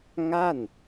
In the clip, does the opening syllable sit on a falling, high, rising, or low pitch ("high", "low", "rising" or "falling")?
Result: falling